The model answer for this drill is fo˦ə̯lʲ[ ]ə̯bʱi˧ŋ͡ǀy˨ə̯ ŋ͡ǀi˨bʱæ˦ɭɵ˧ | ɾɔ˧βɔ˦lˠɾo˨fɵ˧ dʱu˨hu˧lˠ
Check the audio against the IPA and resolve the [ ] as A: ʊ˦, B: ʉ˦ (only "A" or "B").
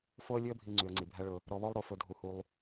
B